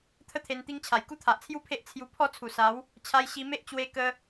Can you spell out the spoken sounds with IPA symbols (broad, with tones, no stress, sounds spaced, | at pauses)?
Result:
t̪ʰ ə˥˧ t̪ʰ e˧ n t̪ i˦ ŋ t͡ɕʰ a˨˩ j k u˥˧ t̪ʰ a˨ ʔ t͡sʰ j u˦ pʰ e˦ ʔ t͡sʰ j u˧ pʰ ɔ˥˧ t͡sʰ u˨˩ s a˨˦ w | t͡ɕʰ a˧ j ɕ i˧ m e˦ ʔ t͡ɕ w e˧ k ə˧